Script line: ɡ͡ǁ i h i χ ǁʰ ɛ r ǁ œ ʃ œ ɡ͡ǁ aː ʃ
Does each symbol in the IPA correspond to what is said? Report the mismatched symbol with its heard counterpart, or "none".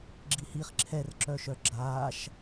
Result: none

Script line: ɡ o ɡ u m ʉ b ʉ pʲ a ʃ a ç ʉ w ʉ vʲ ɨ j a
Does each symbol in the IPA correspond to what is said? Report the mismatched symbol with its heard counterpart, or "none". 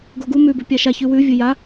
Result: none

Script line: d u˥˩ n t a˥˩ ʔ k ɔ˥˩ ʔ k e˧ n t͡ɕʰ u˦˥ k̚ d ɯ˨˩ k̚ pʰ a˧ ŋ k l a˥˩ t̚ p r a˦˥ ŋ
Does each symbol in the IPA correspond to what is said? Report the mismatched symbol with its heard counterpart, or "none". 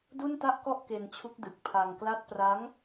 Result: none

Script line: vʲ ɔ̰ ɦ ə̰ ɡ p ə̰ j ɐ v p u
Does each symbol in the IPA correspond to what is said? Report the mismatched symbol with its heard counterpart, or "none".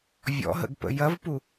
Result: none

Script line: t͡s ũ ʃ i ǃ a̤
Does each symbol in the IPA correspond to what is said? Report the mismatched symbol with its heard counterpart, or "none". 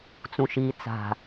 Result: ǃ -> t͡s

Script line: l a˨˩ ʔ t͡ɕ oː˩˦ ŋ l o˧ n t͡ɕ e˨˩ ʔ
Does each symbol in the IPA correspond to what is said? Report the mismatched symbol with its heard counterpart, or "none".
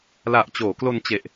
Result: ŋ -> k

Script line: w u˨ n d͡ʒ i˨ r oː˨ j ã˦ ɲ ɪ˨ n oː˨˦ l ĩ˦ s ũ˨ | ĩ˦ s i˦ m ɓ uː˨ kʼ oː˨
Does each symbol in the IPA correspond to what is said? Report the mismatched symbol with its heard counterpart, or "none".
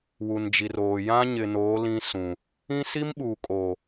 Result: none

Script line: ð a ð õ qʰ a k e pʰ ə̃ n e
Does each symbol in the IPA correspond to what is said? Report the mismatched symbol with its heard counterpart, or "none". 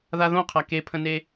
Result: none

